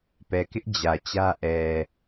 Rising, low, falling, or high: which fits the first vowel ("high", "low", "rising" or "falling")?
low